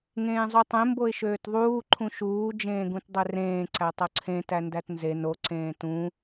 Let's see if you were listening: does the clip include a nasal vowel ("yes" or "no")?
yes